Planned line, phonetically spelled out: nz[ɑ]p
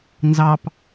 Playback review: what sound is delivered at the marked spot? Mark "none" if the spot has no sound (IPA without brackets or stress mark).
ɑ